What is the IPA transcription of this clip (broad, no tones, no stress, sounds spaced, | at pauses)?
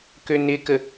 k ø n ɪ k ə